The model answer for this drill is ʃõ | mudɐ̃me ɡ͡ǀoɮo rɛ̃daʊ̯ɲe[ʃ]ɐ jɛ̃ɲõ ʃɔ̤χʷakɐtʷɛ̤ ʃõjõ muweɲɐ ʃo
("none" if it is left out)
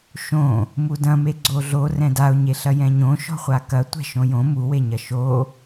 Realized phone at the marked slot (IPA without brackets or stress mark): ɬ